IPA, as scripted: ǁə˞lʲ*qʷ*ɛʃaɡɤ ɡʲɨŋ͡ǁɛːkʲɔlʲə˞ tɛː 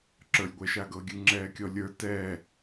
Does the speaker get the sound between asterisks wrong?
yes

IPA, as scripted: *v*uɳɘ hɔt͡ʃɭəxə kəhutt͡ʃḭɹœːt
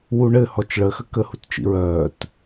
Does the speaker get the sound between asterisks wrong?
yes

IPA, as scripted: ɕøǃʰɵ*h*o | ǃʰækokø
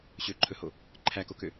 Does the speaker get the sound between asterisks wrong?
no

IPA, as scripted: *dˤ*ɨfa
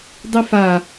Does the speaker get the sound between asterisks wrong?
no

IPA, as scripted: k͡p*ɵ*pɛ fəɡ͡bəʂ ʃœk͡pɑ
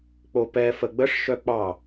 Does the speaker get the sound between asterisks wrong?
yes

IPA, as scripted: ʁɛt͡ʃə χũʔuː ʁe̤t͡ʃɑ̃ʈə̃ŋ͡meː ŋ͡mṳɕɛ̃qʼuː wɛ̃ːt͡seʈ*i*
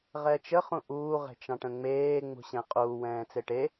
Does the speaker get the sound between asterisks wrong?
yes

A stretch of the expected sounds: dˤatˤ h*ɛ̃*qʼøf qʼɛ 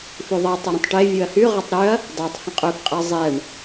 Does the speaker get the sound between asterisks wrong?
yes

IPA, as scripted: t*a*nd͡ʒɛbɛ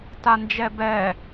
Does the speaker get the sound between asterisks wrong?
no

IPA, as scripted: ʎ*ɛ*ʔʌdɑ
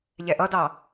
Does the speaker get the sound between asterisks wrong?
no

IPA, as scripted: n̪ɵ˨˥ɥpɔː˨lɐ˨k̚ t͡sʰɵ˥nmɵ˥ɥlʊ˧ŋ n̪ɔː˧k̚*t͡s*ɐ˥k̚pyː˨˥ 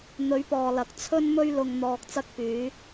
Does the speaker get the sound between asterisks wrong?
no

